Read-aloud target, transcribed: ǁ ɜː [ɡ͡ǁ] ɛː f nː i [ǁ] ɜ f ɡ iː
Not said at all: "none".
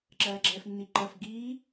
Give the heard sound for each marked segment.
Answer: ɡ͡ǁ, ǃ

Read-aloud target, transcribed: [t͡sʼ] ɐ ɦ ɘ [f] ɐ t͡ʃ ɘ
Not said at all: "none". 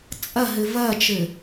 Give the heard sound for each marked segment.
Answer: t͡sʼ, v

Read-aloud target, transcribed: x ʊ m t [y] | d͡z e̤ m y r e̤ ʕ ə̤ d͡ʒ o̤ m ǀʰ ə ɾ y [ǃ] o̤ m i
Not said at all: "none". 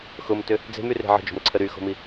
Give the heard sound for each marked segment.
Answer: ʏ, x

